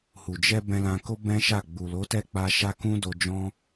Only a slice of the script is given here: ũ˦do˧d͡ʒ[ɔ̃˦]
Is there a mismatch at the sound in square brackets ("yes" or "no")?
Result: no